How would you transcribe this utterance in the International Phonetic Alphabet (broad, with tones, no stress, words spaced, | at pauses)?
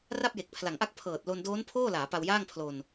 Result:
ra˥˩p̚je˨˩k̚pʰla˨˩ŋʔa˥˩k̚ pʰɤː˨˩t̚lo˧n doː˦˥npʰoː˥˩laː˩˦ pa˧wjaː˥˩ŋpʰlo˧n